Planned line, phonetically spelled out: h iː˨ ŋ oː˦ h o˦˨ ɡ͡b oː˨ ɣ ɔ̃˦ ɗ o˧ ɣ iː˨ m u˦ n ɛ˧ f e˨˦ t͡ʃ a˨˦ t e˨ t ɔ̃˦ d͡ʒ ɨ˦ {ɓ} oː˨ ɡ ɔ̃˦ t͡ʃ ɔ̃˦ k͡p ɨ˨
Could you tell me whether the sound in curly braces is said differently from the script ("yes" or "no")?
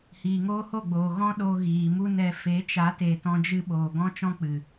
no